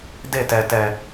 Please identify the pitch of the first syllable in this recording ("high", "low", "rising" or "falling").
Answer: falling